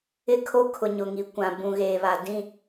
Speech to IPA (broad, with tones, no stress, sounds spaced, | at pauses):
ɪ˦ kʰ o˦ kʰ ʊ˨ ɲ ʊ˨ ŋ i˨ kʷ ã˨ b ũ˨ ɣ eː˨ β a˨ d ĩ˦˨